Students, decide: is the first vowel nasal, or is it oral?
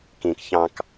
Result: nasal